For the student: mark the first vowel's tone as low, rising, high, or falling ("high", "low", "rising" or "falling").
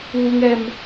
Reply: high